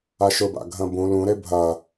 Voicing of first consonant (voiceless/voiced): voiceless